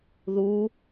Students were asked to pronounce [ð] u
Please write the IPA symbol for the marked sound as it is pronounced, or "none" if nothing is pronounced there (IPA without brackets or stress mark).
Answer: ð